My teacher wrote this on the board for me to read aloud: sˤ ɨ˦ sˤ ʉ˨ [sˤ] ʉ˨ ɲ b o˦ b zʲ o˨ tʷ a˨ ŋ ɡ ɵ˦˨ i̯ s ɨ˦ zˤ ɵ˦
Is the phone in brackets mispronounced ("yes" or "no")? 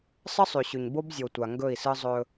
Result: yes